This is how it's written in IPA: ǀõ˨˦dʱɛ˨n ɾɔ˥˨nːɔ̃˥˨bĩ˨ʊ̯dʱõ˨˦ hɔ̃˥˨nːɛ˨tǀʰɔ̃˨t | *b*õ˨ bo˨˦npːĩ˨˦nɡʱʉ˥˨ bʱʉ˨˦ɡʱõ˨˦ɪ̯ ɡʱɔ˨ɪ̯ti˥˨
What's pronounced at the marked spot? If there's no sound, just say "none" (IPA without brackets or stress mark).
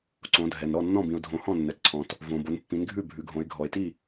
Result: v